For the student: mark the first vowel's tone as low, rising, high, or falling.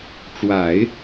low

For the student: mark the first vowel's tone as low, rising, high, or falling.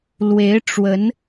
rising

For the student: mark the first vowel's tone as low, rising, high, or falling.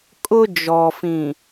high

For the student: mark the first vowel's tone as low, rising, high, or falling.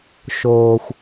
low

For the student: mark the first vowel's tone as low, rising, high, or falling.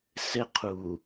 high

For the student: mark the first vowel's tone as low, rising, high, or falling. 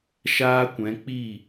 high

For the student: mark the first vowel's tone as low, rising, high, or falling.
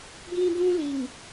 high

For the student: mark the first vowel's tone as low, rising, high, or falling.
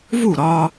falling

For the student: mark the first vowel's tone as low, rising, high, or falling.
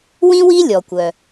high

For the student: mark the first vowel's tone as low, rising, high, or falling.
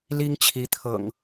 high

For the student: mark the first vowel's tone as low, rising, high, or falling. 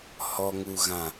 low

